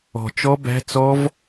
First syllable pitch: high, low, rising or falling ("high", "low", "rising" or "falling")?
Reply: low